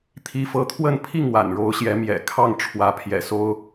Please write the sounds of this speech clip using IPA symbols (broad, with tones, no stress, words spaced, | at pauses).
t̪ʰi˧˥fɤ˧˥t̪ʰwə˥˧npʰi˥˩ŋ wa̰˨˩nɻo˧˥ʊ̯ɕjɛ˧˥ mjɛ̰˨˩ kʰɑ˥˩ŋ ʈ͡ʂʰwä˧˥pʰjɛ̰˨˩so˥ʊ̯